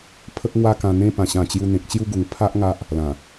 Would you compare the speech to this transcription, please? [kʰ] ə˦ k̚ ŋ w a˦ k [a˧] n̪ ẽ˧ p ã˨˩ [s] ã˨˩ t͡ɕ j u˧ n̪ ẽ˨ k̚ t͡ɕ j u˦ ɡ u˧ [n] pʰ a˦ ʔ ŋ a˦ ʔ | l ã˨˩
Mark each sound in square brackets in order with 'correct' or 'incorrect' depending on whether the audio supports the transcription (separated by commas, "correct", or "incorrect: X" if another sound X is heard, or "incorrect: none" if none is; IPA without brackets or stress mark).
incorrect: pʰ, incorrect: ã˧, incorrect: ɕ, incorrect: ŋ